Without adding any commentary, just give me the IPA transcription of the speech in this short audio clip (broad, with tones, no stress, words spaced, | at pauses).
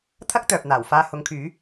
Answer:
t̪ʰɐ˥k̚t̪œː˨p̚n̪aː˨˩w faː˧hʊ˨˥ŋkʰyː˨˥